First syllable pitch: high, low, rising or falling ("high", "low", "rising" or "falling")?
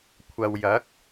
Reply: low